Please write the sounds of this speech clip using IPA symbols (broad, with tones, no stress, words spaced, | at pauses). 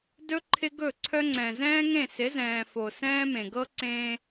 dɵ˦ ǃʰɪ˦ɡɵ˦˨ǀʰœ˦ŋ͡ǀɛ̃˨ zɛ̃ː˦ŋẽ˦˨sɪ˨˦zɛ̃ː˨ fo˨sɛ̃ː˦ mẽ˨ɡɤ˦ǀẽː˦